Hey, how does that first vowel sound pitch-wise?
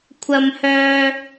high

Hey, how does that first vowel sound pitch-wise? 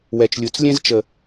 low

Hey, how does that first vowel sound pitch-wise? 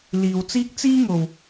low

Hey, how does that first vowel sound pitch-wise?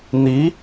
rising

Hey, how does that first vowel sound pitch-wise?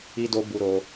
high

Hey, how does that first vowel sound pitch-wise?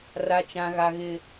high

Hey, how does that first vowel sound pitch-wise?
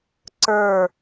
falling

